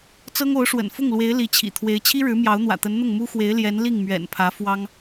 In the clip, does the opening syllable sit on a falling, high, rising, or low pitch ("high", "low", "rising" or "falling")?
high